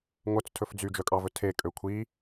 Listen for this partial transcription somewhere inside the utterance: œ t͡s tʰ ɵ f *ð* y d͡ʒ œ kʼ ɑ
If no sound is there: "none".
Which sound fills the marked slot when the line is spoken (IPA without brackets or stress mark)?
d͡z